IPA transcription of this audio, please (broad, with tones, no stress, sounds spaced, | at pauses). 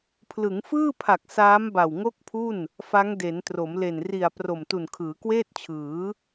pʰ l ɯ˩˦ ŋ f ɯː˥˩ pʰ a˨˩ k̚ s aː˦˥ m b a˨˩ w ŋ o˥˩ k̚ pʰ u˥˩ n | f a˦˥ ŋ d e˩˦ n t r o˩˦ m l e˨˩ n r i˨˩ a̯ p r o˨˩ m t u˨˩ n kʰ ɯː˩˦ k w eː˥˩ t̚ t͡ɕʰ ɯː˩˦